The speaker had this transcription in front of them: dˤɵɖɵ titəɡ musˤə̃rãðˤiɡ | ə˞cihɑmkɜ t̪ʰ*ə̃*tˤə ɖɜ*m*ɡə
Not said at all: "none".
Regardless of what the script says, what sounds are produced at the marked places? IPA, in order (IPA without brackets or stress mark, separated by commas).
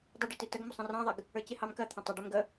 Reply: ə̃, m